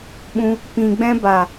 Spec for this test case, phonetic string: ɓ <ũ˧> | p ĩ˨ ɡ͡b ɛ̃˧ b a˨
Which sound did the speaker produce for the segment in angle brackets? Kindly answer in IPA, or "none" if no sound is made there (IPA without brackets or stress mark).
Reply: ũ˧